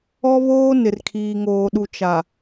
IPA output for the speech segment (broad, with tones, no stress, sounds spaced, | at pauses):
ɔ˦ β oː˦ n ɪ˨ r kʰ iː˨ ŋ oː˨ ɗ u˨ t͡ʃ a˨